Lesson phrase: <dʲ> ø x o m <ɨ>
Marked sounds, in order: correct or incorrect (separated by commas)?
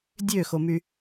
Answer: correct, incorrect